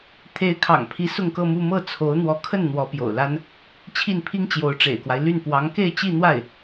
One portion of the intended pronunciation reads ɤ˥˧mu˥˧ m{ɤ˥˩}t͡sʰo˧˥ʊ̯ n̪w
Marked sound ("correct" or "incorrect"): correct